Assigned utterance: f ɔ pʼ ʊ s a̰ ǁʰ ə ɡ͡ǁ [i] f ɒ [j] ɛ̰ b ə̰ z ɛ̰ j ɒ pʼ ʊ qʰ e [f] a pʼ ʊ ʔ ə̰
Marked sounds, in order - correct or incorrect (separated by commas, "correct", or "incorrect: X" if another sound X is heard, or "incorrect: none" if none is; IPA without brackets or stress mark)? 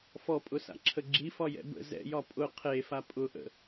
correct, correct, correct